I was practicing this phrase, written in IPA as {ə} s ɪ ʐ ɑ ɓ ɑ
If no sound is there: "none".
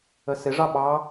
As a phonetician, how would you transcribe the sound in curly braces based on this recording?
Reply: ə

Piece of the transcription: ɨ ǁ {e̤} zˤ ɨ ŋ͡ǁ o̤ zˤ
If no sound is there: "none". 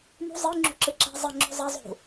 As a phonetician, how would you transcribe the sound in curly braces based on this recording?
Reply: e̤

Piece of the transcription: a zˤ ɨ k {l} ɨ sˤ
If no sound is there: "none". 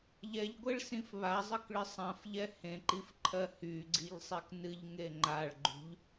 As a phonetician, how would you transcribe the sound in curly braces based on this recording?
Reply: ɭ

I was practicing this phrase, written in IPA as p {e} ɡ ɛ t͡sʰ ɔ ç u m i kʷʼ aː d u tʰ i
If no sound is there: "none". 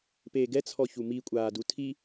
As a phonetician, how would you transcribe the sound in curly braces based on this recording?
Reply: eː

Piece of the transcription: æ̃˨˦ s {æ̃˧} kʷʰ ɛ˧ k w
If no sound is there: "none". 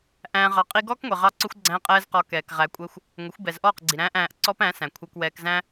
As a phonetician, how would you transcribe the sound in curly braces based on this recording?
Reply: æ̃˨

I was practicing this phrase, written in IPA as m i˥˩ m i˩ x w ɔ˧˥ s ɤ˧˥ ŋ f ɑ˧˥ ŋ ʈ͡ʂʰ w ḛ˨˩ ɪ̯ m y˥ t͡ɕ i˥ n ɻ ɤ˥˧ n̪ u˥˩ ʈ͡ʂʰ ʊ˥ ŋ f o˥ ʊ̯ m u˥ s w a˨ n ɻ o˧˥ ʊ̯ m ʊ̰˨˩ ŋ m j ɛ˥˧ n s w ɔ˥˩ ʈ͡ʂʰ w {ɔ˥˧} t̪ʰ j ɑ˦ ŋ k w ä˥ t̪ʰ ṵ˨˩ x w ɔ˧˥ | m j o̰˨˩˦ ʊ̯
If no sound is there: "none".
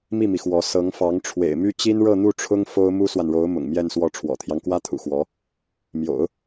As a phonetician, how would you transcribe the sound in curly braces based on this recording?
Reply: ɔ̰˨˩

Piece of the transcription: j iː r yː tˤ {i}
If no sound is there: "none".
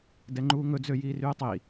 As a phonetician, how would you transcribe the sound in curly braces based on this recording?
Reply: i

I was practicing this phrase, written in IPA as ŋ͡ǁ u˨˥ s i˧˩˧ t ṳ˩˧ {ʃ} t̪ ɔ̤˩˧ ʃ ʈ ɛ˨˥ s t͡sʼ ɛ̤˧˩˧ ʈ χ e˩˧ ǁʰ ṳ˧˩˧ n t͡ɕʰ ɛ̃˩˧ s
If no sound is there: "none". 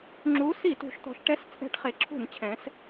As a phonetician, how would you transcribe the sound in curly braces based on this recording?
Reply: ʃ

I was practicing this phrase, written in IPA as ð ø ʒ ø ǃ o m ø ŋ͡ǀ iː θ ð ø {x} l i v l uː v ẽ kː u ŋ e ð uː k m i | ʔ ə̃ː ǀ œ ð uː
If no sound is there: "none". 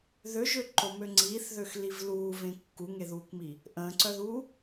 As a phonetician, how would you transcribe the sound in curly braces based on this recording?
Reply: x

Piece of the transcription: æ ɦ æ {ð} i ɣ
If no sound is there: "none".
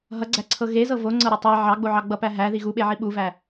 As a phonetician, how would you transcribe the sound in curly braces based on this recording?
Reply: ð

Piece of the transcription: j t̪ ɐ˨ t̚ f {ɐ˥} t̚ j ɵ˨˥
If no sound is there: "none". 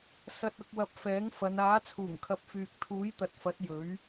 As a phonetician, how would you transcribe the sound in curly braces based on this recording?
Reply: ɐ˨˥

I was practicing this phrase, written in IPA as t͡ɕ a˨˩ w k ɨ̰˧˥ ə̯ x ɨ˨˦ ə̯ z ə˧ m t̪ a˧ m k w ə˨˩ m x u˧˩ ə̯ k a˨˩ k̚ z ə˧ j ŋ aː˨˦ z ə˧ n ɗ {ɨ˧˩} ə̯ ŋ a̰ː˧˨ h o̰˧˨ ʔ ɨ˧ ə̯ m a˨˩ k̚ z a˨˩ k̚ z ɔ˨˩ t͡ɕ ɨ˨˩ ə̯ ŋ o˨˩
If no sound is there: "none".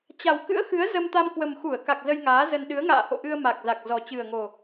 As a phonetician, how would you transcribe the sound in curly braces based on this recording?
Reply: ɨ˨˦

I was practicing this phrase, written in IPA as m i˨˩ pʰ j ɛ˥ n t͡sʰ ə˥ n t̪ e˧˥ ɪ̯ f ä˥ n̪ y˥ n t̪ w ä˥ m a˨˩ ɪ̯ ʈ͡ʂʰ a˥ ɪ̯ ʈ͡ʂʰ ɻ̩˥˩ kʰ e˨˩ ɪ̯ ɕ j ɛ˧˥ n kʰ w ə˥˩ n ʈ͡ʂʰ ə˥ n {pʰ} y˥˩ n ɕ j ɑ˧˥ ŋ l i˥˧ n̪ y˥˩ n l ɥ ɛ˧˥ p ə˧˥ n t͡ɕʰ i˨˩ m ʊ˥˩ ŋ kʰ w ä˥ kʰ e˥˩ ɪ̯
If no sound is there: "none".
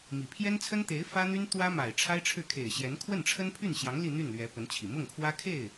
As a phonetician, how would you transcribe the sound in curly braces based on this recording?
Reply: pʰ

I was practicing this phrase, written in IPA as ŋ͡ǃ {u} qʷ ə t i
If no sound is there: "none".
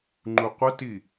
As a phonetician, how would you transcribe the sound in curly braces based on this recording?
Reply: u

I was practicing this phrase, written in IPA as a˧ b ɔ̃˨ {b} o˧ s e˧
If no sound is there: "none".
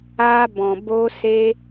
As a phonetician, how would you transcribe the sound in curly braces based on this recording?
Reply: b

